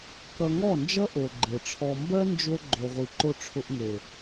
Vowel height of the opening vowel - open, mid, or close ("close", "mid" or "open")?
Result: mid